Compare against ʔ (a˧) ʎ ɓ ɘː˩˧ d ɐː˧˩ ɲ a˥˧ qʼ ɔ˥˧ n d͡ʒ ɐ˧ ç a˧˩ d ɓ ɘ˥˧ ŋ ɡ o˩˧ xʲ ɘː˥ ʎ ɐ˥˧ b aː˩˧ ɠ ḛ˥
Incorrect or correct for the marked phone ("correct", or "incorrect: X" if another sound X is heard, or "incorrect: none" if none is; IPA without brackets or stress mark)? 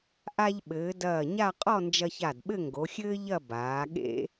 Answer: correct